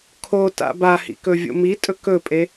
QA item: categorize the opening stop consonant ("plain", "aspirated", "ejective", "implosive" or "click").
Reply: aspirated